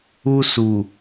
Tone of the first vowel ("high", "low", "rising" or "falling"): high